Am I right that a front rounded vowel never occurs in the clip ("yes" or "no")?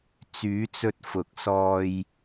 no